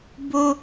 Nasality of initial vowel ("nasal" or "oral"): oral